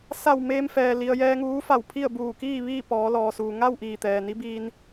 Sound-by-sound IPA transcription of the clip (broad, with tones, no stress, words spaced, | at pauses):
sa˧˩w meː˧mfɛː˩li˩ə̯ jɛː˧ŋuː˧˥fa˧˩wpʰi˥˨ə̯ buː˧˩kiː˥˨ ʋiː˥˨pɔː˩˧lɔː˩suː˩ ŋa˥˨w ʔiː˧˩t̪ɛː˩ni˧˥ biː˧n